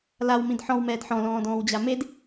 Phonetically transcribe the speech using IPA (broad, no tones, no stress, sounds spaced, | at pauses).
l a w m ĩ d ħ ɔ̃ w m ɛː d ħ ɔ̃ l ɔ̃ː d ɔ̃ː w d͡ʑ a m e d